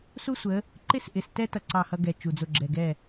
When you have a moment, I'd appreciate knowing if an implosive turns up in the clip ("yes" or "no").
no